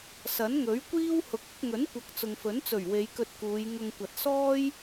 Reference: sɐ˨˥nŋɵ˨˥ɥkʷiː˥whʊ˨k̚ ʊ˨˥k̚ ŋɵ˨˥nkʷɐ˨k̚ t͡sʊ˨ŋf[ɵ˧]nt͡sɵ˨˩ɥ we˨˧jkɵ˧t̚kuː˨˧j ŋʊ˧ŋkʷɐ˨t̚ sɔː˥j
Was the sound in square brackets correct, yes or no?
no